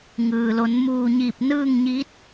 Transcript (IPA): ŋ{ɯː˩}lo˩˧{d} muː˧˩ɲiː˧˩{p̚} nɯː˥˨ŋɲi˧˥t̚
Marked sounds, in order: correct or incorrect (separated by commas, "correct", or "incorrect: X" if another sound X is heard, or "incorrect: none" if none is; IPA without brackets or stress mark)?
correct, incorrect: n, correct